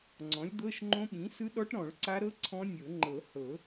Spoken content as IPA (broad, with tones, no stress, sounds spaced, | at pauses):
ŋ͡ǀ ɔ̃˩˥ lʲ d̪ ɤ˧˥˧ ʃ ŋ͡ǃ õ˦˥ ɓ ĩ˩˥ s ɯ˦˥ ɗ ɔ˦˥ ʈ ɾ ɔ̃˨˩˦ ɭ ǀ a˦˥ ɾ ɤ˧˥˧ ǀʰ ɔ̃˦˥ nʲ ɤ˨˩˦ ŋ͡ǃ ɤ˨˩˦ h ɤ˨˩˦